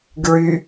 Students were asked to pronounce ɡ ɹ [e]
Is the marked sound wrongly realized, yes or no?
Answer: yes